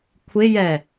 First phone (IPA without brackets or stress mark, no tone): kʷʰ